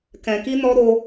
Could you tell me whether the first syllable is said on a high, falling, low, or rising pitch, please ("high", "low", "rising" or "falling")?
low